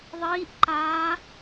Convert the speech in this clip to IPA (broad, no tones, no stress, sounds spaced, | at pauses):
ðˤ iː ʔ ǃ aː